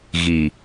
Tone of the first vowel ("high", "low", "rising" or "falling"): low